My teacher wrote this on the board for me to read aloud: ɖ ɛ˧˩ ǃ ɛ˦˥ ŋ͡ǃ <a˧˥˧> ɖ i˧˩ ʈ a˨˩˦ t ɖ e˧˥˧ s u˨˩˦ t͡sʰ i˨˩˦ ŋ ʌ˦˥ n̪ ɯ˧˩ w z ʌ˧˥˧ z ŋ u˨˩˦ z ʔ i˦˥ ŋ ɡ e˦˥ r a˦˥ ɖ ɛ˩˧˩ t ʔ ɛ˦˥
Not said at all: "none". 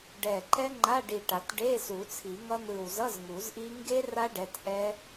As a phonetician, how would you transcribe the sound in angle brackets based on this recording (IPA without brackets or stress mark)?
a˧˥˧